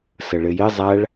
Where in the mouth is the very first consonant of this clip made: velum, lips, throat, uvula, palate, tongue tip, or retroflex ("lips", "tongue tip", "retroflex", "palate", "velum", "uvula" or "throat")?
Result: tongue tip